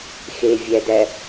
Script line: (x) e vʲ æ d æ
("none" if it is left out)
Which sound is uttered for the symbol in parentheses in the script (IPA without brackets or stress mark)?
x